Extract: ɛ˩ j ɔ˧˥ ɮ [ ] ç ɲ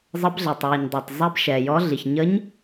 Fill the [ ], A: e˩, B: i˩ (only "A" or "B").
B